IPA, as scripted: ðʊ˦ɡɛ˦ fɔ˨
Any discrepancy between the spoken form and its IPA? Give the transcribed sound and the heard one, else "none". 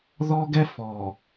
ʊ˦ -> ɔ˦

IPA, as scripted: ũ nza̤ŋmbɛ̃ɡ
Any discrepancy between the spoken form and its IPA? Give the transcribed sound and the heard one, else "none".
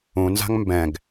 none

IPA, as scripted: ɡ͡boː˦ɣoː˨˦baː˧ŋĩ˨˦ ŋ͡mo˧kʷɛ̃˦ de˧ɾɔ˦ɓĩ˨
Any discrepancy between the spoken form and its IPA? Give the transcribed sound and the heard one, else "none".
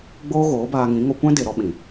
ŋ͡m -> ŋ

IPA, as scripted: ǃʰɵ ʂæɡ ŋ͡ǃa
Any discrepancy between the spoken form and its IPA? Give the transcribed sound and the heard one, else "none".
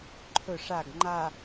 æ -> a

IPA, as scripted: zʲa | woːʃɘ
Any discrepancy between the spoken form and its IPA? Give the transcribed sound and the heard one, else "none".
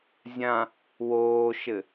a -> ã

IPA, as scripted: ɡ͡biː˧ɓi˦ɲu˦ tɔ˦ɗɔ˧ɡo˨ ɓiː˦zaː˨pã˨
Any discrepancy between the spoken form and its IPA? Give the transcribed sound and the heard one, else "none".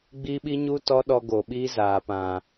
none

